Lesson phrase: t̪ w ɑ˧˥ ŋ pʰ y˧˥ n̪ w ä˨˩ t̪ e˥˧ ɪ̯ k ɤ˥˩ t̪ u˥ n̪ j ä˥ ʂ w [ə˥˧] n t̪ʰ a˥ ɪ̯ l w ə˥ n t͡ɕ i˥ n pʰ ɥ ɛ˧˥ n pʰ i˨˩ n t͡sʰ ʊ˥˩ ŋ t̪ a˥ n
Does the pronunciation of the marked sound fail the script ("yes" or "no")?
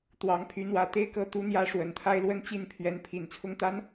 yes